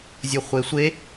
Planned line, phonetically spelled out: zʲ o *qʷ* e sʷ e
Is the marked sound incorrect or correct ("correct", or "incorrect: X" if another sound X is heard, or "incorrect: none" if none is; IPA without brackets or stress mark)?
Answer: incorrect: χʷ